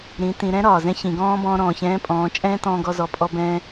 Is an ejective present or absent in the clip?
present